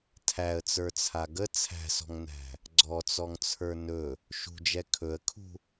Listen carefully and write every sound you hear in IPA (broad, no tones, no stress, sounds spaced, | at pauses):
tʰ æ ə̯ t͡s ə˞ t͡sʰ a ɡ ə t͡sʰ æ̤ s ɔ̤ ŋ n æ̤ | ɡ͡ǀ ɔ t͡s ɔ ŋ t͡sʰ ə˞ n ɵ | ʃ ṳ d͡ʒ ɛ kʰ ɵ ə̯ kʰ ṳ